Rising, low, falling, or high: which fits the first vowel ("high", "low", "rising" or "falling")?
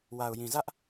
low